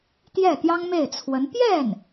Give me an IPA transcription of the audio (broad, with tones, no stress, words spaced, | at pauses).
t̪jɛ˥˩t̪jɑ˥ŋ me˥˩ɪ̯t͡sʰwə˧˥n pjɛ˥˩n